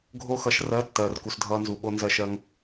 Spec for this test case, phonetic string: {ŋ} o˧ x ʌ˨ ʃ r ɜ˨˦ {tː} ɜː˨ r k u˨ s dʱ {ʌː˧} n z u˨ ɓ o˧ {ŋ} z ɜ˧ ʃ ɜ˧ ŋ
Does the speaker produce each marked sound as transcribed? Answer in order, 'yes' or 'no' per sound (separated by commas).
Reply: no, yes, yes, no